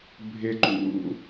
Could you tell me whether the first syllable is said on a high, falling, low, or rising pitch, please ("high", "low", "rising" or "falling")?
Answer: low